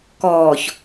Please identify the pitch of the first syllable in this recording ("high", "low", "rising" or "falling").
low